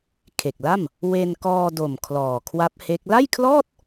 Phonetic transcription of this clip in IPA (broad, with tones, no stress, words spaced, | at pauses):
kʰe˨˩k̚la˥˩m | we˧nkɔː˧do˨˩m kʰlɔː˨˩kʰwa˦˥p̚he˦˥k̚ la˥˩jkʰlɔː˥˩t̚